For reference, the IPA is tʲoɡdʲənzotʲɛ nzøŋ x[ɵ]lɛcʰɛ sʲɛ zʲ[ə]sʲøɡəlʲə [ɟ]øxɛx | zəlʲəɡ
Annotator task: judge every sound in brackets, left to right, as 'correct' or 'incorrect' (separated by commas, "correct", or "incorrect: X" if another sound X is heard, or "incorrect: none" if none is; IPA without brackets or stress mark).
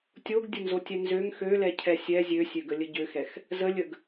incorrect: ø, incorrect: ø, correct